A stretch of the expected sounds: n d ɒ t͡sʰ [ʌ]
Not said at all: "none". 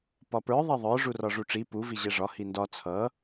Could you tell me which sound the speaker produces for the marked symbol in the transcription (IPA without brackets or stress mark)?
ʌ